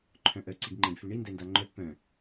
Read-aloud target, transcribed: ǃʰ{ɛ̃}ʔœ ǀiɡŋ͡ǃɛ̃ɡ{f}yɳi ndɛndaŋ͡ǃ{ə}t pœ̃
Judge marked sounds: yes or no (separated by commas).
no, yes, no